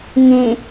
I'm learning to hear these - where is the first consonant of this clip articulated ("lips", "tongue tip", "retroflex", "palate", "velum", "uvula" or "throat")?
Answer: velum